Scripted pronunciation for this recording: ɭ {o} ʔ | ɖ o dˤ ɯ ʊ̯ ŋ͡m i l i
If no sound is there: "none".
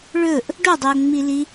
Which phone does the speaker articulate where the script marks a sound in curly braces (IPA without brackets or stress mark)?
ɵ